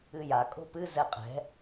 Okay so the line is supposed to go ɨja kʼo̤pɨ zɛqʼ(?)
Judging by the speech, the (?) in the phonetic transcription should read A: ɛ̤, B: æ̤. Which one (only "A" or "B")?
A